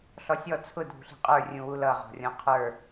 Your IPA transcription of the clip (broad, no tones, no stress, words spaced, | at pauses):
ɬɔsʲɔ t͡sʰʊ dʱṳɬi̤qʼə˞ rʲũwulʌ ʁɔ̤rʲɔ̃qʰə˞